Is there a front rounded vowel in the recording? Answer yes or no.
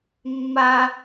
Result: no